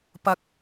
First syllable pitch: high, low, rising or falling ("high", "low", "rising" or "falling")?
rising